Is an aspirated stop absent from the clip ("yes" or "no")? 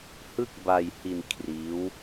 no